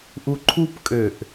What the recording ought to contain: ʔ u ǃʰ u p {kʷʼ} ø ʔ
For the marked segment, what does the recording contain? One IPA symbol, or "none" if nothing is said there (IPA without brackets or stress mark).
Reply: kʼ